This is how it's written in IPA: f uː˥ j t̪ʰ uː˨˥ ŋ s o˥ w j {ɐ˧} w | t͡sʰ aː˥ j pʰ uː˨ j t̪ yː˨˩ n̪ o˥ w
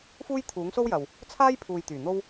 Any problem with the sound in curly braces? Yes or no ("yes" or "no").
yes